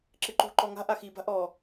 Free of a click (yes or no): no